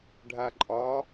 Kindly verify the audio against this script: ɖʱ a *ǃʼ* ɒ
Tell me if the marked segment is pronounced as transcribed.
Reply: yes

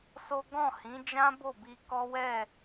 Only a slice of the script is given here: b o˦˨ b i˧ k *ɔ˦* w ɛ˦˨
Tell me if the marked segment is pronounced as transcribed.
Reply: yes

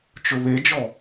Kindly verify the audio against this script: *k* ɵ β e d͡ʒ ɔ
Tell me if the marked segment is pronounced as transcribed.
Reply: no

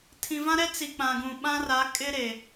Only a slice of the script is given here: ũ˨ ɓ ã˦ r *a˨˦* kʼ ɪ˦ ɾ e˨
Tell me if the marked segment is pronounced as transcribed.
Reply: yes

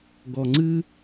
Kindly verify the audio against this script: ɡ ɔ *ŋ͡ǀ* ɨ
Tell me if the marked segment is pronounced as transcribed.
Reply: yes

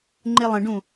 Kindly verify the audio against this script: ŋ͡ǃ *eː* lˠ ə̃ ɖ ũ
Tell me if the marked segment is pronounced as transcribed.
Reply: no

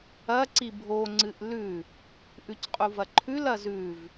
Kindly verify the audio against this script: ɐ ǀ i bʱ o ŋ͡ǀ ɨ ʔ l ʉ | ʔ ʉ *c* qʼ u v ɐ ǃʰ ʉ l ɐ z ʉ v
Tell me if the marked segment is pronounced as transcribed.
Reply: yes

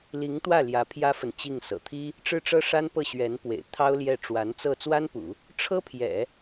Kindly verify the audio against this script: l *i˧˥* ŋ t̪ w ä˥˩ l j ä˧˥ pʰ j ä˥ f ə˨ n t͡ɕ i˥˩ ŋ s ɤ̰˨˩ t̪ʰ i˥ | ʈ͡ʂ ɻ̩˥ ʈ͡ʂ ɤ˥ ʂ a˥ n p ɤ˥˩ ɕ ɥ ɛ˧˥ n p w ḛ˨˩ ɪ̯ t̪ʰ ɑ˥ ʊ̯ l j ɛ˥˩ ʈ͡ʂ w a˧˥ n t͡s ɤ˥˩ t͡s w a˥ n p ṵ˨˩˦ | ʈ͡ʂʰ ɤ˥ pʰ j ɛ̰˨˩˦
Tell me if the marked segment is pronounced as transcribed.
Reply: yes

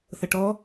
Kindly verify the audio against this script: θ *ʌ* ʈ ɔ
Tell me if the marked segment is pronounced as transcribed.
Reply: yes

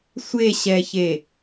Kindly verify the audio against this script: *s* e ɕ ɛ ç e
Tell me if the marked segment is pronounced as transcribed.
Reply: no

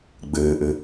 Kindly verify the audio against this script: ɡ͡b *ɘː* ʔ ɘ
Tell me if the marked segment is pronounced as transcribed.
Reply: yes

